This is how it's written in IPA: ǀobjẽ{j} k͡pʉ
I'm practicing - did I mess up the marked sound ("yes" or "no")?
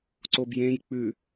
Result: no